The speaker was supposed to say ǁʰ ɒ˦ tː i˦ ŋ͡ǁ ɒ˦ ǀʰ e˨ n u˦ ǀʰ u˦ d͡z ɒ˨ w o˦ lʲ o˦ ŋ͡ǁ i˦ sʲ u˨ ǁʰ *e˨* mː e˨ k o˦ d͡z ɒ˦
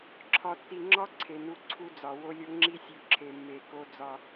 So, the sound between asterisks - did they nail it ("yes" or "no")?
yes